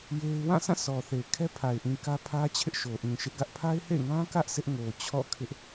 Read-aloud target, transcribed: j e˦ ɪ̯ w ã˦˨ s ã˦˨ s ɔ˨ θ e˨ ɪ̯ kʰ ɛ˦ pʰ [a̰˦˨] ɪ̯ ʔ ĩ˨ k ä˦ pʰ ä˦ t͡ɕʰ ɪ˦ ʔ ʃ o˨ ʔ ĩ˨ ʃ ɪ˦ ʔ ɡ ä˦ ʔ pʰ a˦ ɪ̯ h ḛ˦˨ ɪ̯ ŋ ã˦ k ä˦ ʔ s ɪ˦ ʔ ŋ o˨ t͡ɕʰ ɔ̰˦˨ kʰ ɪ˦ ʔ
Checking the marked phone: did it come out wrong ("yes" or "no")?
yes